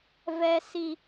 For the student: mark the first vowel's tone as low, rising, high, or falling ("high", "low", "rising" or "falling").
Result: high